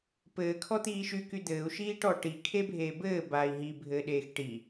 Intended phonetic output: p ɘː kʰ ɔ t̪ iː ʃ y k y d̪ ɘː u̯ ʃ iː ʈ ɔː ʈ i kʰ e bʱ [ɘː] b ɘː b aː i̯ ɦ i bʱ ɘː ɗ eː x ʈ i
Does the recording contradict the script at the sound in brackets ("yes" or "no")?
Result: yes